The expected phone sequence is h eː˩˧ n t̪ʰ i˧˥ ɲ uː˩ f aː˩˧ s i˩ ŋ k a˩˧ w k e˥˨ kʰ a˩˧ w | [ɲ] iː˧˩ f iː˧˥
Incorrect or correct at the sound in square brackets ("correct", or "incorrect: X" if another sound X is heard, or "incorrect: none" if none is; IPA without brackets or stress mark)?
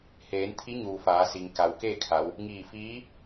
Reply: incorrect: ŋ